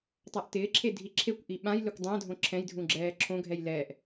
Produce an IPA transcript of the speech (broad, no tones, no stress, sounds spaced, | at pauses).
tˤ a ʔ t ɪː ǁʰ e dʱ i ǁʰ e kʷ ʔ i ɓ ã j l ɪ kʷ dˤ ã dʱ õ ǁʰ ɛ̃ j dʱ ũ ɡ͡ǁ ɛː ǁʰ õ ɡʱ ɛ j l ɛː ʔ